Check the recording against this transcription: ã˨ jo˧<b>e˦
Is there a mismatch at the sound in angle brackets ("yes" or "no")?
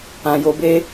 no